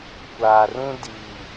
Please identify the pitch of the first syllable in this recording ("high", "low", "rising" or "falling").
low